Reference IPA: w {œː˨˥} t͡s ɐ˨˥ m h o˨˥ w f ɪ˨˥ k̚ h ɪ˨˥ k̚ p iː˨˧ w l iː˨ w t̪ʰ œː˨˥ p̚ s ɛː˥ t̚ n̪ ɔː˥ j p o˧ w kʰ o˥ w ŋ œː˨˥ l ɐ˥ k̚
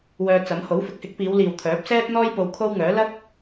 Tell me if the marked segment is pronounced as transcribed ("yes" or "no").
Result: no